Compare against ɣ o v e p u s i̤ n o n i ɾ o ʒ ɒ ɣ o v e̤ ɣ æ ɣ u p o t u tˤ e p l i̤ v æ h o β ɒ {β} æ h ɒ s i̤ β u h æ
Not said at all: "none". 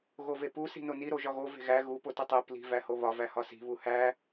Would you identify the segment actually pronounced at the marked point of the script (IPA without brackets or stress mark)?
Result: v